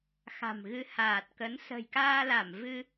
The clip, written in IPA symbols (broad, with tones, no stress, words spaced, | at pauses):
xa̤˨˩mɣɨ˧ haː˨˩t̚kə˨˦n sə̤˨˩jkaː˧la˧˩m vɨ˧